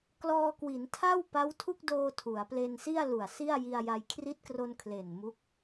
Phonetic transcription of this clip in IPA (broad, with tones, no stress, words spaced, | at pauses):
klɔː˧kwi˩˦ntʰa˥˩w pa˦˥wtʰu˥˩k̚doː˧ tʰu˩˦a̯ ple˧nsi˥˩a̯lu˨˩a̯ si˥˩a̯ji˧a̯ja˧j kʰri˦˥t̚kro˧n kʰle˨˩n mu˦˥k̚